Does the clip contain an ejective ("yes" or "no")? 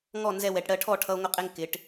yes